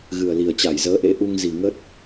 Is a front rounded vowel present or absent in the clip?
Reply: absent